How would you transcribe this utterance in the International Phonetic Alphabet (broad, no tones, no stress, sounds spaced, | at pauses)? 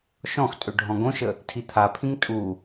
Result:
ʃ ɔ̃ x tʼ ø ɖʱ ɔ̃ ɡ õ ʃ ə | tʰ i t̪ʰ a pʰ ĩ ŋ tʼ u